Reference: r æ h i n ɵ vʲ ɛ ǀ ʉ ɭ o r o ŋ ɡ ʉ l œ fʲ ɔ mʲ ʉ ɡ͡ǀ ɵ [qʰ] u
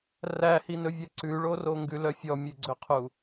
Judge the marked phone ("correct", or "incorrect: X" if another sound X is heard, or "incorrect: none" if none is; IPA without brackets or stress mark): correct